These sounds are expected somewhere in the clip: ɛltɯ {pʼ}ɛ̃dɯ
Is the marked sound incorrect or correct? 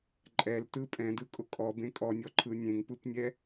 correct